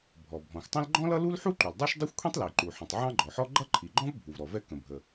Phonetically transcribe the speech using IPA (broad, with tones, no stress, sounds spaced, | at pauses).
bʱ ɔ˩ bʱ ɔ̃˩ xʷ tˤ ə̃˥ l ɡ͡ǃ ɔ̃˥ l ʌ˥ l u˥ l ħ u˥ ǃ u˩ l dˤ ə˞˥ ʃ dˤ u˥ xʷ kʷʰ ĩ˥ tˤ l i˩ ǃ u˩ ħ ĩ˩ tˤ ʕ ɑ̃˥ ɡ͡ǃ ɔ˩ ħ ɔ˥ ɡ͡ǃ ʌ˥ ǃʰ i˩ ɡ͡ǃ ɔ̃˥ v bʱ u˩ v ɾ ɔ˩ v ɛ˥ k ə̃˩ bʱ ə˩